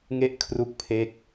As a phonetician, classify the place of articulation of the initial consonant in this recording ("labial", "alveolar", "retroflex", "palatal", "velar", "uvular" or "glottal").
velar